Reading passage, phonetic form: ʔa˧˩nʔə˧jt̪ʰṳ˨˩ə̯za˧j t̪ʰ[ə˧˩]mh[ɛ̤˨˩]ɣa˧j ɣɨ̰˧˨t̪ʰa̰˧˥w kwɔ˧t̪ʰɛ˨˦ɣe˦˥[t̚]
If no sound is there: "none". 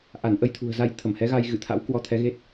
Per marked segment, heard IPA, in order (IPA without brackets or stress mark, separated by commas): ə˧˩, ɛ˨˦, t̚